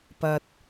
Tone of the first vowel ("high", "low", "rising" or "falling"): low